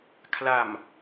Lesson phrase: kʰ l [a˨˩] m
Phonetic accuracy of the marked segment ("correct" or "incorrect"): correct